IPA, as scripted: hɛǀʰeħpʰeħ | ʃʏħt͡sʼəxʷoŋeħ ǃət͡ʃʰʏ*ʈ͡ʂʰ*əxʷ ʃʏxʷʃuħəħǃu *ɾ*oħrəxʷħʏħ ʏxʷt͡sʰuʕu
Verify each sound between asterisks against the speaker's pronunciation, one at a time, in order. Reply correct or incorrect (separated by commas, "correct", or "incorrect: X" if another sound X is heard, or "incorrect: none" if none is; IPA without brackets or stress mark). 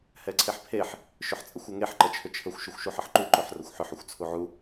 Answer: incorrect: t͡ʃʰ, incorrect: ǃ